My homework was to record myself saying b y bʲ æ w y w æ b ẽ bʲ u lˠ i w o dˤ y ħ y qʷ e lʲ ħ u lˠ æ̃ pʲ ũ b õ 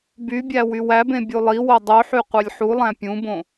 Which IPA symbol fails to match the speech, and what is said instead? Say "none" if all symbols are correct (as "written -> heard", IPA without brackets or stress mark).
none